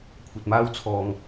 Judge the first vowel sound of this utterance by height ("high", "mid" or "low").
low